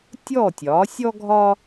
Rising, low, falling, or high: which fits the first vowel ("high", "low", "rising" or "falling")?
falling